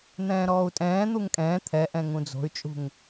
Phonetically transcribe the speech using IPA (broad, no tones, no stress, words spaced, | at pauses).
n̪ɛ̃ːɾɔːu̯tʼɛ̃ː n̪uŋkʼɛ̃ː t̪ʰɛʔɛ̃ ŋũd͡zo̤y̯t͡ʃʼṳŋ